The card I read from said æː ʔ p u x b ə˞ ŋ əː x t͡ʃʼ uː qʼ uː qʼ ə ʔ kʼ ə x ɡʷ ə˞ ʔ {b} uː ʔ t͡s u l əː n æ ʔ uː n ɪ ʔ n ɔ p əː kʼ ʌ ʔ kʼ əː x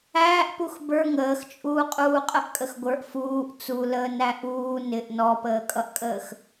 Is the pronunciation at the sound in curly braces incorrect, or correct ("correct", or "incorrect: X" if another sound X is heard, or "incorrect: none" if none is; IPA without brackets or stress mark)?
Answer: incorrect: f